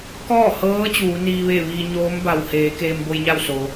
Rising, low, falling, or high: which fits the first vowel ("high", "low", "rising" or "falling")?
falling